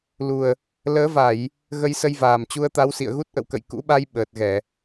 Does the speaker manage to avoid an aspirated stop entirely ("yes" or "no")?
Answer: yes